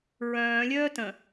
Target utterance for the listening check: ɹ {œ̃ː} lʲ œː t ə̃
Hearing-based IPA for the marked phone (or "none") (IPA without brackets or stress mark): œ̃ː